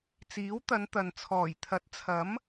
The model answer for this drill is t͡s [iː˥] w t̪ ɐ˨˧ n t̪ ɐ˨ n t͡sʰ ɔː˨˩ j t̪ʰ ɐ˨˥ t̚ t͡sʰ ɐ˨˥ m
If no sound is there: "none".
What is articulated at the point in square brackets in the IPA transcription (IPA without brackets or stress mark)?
iː˨˥